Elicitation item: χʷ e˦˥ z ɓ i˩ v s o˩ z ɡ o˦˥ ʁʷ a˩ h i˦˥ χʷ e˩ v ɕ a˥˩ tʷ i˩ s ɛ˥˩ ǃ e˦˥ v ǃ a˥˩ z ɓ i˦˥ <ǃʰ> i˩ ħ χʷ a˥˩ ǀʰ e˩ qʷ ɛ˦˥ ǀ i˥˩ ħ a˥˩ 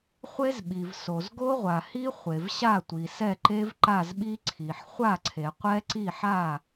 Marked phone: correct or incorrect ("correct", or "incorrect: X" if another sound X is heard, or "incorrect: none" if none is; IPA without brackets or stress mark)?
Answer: incorrect: ǀʰ